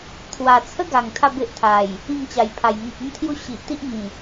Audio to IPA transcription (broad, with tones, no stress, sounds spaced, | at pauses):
t̪ʰ w a˨˩ t͡sʰ ə˦ ɡ a˨˩ ŋ t̪ʰ a˥˧ b e˦ ʔ t̪ʰ a˨˩ j | ĩ˥˧ ŋ t͡ɕ a˨˩ j pʰ a˨˩ j ŋ ẽ˨ k̚ ə˦ m t̪ʰ j u˦ ɕ i˨ ʔ t̪ i˦ ʔ ŋ ĩ˨˩